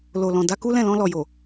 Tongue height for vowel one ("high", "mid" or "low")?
mid